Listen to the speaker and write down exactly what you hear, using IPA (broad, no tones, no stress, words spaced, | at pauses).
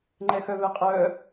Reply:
ŋ͡ǃɛxœvɛqʼœ